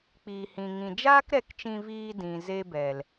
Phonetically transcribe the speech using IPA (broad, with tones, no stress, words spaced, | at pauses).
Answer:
k͡piː˨hĩ˨ŋĩ˨ d͡ʒaː˦kɾɛ˧kt͡ʃĩ˧viː˧ dĩ˨ze˦bɛ˨l